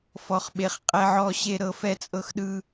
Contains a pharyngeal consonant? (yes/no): yes